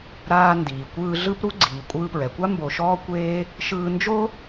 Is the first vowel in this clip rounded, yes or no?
no